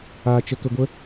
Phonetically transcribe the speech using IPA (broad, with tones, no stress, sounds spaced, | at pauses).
aː˧ t͡ʃ ə˧ k ə˧ ɡʷ ə˦